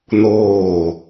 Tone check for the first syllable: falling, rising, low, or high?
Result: falling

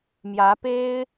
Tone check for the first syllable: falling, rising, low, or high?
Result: rising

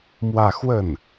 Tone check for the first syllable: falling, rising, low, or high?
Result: falling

